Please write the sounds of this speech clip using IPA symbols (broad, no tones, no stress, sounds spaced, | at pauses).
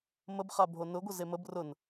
m ə b χ a bʱ o n ʊ ɡʷ ə z e m ə b r ʊ n